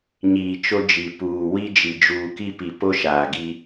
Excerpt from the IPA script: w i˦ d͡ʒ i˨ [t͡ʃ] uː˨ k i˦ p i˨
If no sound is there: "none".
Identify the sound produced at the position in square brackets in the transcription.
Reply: d͡ʒ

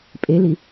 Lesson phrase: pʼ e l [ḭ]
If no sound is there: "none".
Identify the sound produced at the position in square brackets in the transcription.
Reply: i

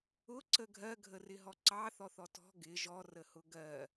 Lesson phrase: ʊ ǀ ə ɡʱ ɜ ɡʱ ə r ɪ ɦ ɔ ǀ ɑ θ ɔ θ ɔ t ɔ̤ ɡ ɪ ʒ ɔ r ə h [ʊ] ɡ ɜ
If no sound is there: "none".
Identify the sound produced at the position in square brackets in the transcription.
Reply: ʊ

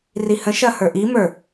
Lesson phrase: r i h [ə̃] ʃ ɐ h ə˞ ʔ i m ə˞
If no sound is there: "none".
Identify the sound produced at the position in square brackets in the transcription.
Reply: ə̃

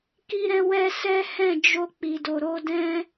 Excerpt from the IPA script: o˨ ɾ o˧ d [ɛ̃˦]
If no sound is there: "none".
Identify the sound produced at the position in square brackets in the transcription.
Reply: ɛ̃˦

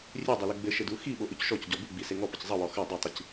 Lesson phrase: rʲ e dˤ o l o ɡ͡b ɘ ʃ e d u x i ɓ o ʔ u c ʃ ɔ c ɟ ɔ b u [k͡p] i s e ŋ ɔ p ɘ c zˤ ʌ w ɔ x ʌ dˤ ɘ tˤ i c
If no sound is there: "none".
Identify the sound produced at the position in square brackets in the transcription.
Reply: ɡ͡b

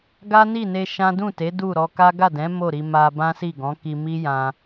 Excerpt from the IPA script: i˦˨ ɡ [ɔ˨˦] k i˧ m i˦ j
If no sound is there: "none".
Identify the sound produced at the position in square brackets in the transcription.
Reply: ɔ̃˨˦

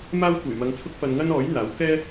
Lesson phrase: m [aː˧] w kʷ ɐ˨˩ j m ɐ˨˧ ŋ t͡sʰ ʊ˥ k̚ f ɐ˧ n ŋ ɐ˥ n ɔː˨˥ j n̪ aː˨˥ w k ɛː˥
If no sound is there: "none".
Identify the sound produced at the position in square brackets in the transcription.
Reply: aː˥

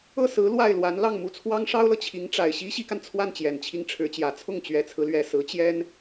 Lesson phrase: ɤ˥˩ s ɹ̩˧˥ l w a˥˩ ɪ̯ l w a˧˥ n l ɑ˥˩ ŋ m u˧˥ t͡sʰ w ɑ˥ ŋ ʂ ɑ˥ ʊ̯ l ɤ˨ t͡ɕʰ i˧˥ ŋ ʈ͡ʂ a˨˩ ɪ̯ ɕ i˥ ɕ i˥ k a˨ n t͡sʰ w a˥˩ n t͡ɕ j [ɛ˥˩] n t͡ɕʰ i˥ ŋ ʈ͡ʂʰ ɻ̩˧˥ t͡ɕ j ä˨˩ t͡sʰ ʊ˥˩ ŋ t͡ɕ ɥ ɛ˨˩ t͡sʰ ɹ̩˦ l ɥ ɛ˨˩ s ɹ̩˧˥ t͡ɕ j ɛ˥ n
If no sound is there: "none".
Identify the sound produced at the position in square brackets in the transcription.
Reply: ɛ˨˩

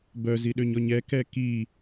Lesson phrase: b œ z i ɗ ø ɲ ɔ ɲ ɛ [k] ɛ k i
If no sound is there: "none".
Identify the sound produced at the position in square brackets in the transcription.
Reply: k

